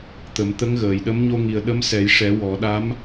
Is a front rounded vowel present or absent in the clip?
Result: absent